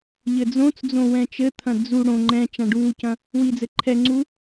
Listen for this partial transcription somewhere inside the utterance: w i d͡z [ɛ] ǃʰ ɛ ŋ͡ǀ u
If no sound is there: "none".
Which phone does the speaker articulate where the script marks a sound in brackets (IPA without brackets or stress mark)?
ɘ